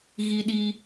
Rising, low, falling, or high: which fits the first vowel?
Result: high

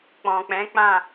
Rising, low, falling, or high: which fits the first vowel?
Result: low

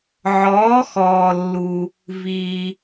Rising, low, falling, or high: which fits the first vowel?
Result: rising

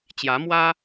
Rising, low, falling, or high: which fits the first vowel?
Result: rising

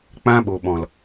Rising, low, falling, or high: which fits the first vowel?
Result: high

